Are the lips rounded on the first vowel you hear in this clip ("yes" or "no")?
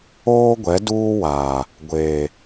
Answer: yes